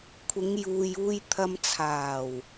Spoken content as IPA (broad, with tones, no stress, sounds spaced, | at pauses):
kʷʰ ɪ˨˧ ŋ j uː˨ j uː˧ j t̪ʰ ɐ˧ m t͡sʰ aː˨˩ w